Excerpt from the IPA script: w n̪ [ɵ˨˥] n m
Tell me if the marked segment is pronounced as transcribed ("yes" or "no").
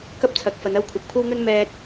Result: no